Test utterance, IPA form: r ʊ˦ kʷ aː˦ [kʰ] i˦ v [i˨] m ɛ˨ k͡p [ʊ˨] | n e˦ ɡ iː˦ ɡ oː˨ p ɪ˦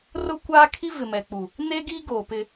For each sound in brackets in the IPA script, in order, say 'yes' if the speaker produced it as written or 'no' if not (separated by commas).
yes, no, no